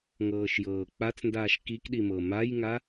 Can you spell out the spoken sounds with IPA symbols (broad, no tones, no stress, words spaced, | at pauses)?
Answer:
ŋɤːʃjɤːk͡pat͡sndaːʃ kikɗi mɤmajŋa